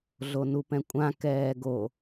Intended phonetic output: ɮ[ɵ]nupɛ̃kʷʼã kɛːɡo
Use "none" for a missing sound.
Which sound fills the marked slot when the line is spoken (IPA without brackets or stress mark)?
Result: o